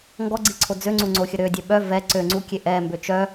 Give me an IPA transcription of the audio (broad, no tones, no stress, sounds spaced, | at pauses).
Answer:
ŋ ɡ ɔ ɡ͡ǀ i ǀʰ o d͡z ø ŋ͡ǀ u ŋ͡ǀ o xʲ ə ɾ ø dʲ ɛ ɓ œ v ɛ ǀ ø ŋ͡ǀ u kʲ e ʔ ɛ m b ø t͡ʃ œ